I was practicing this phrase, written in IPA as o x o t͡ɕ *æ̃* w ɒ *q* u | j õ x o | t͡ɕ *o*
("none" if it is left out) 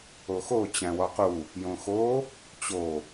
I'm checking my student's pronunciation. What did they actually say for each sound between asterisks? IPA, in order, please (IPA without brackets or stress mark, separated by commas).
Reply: æ̃, q, o